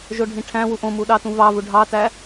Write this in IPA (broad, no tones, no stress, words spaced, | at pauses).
ʒoɖʱĩʈʰæ̃wu ʔõmu ɗɑtũvɑvu ɖʱɑtæ